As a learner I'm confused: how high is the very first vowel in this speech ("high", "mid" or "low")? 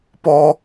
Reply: mid